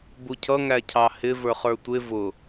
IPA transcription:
b u cʰ ʌ ŋ æ cʰ ɑ h ɪ v ə˞ χ ə˞ tʷ ɪ v ʊ

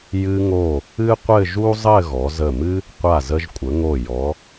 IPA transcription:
j ɨ˧ ŋ o˧˩ | ɨ˥ qʷ ɘ˥˧ ʒ u˥ zˤ ɘ˥˧ ɣ ɔ˩˧ z ə˧˩ m ɨ˥ | qʷ a˧˩ z ə˧ ʒ kʷʼ ə˩˧ ŋ o˧˩ j ɔ˩˧

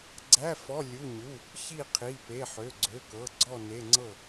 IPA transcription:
ɡ͡ǀ æ˧˥˧ f ɔ˧˥˧ lʲ u˧˥˧ ɲ u˧˥˧ | ç i˥˨ qʰ i˧˥˧ p e˧˥˧ ħ ø˧˥˧ ɡ͡ǀ ø˧˥˧ k ɤ˧˥˧ ɡ͡ǀ ɔ˥˨ n e˧˥˧ ŋ͡ǀ ɤ˥˨

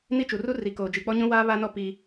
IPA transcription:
n i˦ t͡ʃ u˨ r u˦ r i˨ k oː˨ d͡ʒ i˨ k͡p ɔ˦ ɲ ũ˦ w aː˦ β a˦ n ɔ˦ p i˦

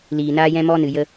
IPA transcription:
l iː˨ n aː˦ j ɛ̃˦ m ɔ˦ n ɨ˨ j ə˧

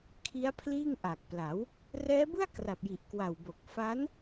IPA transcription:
kʰ i˦˥ a̯ pʰ l iː˥˩ ŋ ʔ a˨˩ k̚ p l a˩˦ w | r ɛː˦˥ b ɯ˥˩ a̯ k r a˨˩ p̚ j i˨˩ ʔ k w a˨˩ w b o˨˩ k̚ f a˦˥ n

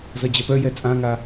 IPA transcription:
z ʌ d͡ʑ ɐ p œ j ɛ t͡sʼ ã ŋ a

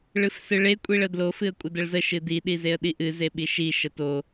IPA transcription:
ɭ ɨ f s ɨ ɭ e kʷʼ i ɭ ə d l o f ɨ ə̯ kʷʼ ə d ə ɭ z ə ʃ ɨ d i ɗ i z e ə̯ ɗ i ʔ ɨ z e ɓ i ʃ i ʃ ə t o

